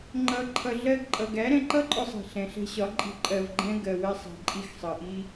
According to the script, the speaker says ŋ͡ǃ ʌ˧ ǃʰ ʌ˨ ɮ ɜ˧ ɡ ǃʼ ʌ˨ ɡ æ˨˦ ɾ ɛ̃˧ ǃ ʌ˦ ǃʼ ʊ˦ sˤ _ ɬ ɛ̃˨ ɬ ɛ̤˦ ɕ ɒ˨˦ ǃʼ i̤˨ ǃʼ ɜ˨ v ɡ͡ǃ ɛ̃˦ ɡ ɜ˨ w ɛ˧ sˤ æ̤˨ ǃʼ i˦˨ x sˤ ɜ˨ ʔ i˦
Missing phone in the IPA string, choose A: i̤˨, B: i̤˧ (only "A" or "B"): A